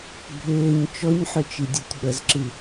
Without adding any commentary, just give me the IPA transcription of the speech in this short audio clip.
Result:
bʱ ʏː ɲ t͡ʃ ɔ ɲ ħ ʏ t͡ʃ i dʲ ɔ tʲ ɓ ə z ǁ ɨ

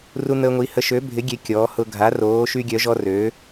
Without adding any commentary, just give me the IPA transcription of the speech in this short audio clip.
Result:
r u˦ n̪ əː˦ ŋʷ i˨˥ h ə˨˥ ʃ ø˨˥ bʱ ɪ˨˥ ɡʲ e˨˥ kʲ ɔː˨˥ h ʊ˦ ɡʱ a˨˥ r oː˨˥ ʃ y˦ ɡʲ œ˨˥ ʒ ɔ˦ r ø˨˥

